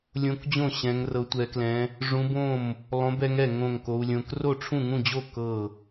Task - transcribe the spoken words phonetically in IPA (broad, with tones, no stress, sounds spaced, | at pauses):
lʲ õ˦˥ k d͡ʑ õ˥˧ ɕ ɛ̃˦˥ ŋ r ɤ˦˥ tʷ ɛ˦˥ k l ɛ̃˦˥ | ʐ ũ˦˥ b õ˥˧ m | lˠ õ˦˥ b ɛ˦˥ ŋ ɛ˥˧ ŋ õ˥˧ ŋ k o˦˥ u̯ lʲ õ˦˥ k r o˥˧ ʈ͡ʂʰ ũ˥˧ ŋ ũ˥˧ d͡ʑ o˥˧ k ɤ˥˧